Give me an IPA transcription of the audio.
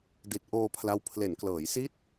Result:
d i˨˩ t̚ ʔ oː˧ pʰ l a˦˥ w pʰ l e˩˦ n k l ɤː˩˦ j s i˦˥ t̚

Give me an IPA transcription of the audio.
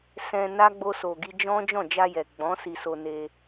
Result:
s ɛ̃˧ n a˦ ɡ͡b o˧ s o˨ ɡ i˧ d͡ʒ ɔ̃˦ d͡ʒ ɔ̃˦˨ d͡ʒ a˧ j ɛ˨ ɡ͡b ɔ̃˨˦ s i˧ s o˧ n e˧

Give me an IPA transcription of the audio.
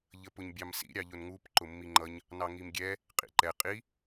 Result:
ʎ ə p ʊ ɲ bʲ ɑ m s ḭ ɾʲ ɑ ʎ ʊ n ŋ u p ǃ ʊ mː i ŋ͡ǃ ʌ ɲ | n ɑ ŋ i m ɡʲ ɛ | qʼ ḭ ǃ ɛ qʼ i

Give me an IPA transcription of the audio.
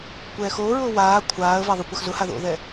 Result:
kʷ ɛː x oː ɹ ʊː w aː kʷʰ aː ə̯ v a ðˤ ʊ kʷ a x z ʊ h a ð o̰ ð ɛ

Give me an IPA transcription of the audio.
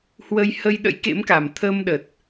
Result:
h w ə˧ j h ə˧ j ɗ ə̰˧˥ j k ḛ˧˥ m k a˨˩ m t̪ʰ əː˧ m ɗ ə˨˩ t̚

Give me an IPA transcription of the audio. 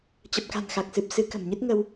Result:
t͡ɕ ə˨˩ p̚ k a̤˨˩ n x a˨˩ k̚ s ɨ˨˩ p̚ s ɨ˨˦ k ə̤˨˩ m ɲ ɨ˦˥ t̚ ŋ ə˧ w

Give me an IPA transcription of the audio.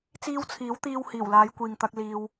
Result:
t͡s iː˧ w t͡sʰ iː˨˥ w t̪ iː˧ w h iː˨˩ w l aː˨˧ j kʷ iː˨ ŋ t̪ ɐ˧ k̚ l iː˧ w

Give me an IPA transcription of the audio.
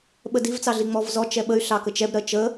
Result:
ɓ ə d i v t͡s ɑ ɮ i ŋ͡m ɔ v z ɔ t͡ʃ ɛ ɓ ə y̯ ɬ ɑ k ə t͡ʃ ɛ b ɾ ɜ t͡ʃ ə

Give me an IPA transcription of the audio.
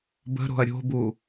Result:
b ə̤ ɾ o̤ ɐ̯ ɾʲ o̤ b u

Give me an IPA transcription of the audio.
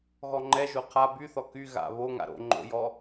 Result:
ɣ ɔ ŋ͡ǃ ɛ ʒ o qʰ a b y θ ɔ k y ɣ a̰ β o ŋ a̰ ɾ o̰ ŋ͡ǃ o̰ j ɔ

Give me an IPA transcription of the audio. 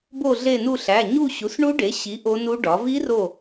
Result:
b o˦˨ ɮ e˦˨ n u˦˨ ɬ æ˩˧˩ ɲ u˦˨ ɕ u˩˥ s ɳ u˦˥ ɖ e˩˥ ɕ i˩˥ ʔ o˦˥ n u˦˥ ɖ ɒ˩˥ v i˦˥ r o˦˨

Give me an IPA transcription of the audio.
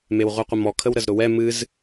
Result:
m e w ʁʷ ɨ qʷ ə m ɔ kʰ ə w ɾ ə z ɾ ʊ w ɛ m ɨ z

